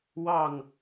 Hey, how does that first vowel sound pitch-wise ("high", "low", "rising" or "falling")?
falling